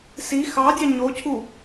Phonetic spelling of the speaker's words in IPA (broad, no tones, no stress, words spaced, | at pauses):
si xɑdʲɑ ɲocʰu